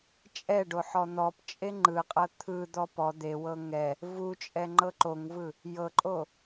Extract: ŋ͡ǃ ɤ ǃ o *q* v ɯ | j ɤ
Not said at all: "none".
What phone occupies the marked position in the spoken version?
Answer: ŋ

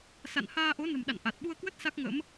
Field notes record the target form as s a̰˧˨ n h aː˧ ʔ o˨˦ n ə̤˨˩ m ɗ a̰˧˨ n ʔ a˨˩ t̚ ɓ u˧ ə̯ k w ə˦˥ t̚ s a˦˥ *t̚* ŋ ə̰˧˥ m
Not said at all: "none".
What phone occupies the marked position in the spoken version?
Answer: k̚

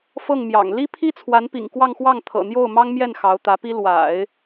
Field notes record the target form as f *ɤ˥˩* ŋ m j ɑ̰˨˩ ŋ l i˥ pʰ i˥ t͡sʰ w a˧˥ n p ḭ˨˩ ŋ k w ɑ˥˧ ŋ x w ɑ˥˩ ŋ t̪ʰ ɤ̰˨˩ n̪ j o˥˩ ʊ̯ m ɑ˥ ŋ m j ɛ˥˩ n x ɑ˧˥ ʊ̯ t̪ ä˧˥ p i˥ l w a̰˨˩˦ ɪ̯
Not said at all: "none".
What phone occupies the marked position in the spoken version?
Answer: ɤ˥˩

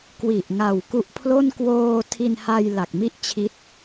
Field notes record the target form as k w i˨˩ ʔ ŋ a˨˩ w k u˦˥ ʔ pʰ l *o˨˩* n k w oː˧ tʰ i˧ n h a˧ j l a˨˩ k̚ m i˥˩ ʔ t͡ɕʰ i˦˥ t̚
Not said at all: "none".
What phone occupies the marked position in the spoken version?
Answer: o˥˩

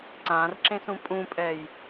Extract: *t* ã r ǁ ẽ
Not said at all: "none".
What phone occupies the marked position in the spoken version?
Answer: ǀ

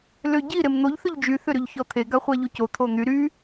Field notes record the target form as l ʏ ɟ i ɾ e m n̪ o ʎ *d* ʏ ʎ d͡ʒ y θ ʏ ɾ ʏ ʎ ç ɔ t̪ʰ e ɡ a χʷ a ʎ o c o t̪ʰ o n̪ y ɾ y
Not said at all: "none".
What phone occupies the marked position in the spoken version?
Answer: θ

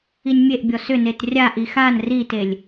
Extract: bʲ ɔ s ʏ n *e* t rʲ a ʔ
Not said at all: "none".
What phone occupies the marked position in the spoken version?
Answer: e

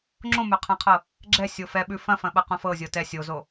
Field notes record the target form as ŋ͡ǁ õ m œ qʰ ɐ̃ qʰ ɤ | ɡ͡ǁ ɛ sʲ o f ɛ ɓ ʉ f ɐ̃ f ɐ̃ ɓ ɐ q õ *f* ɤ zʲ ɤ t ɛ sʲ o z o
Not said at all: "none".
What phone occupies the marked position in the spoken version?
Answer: f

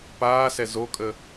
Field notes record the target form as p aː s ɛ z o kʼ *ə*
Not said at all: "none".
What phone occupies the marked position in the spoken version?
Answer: ə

